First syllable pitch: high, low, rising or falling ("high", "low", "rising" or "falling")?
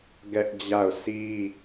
high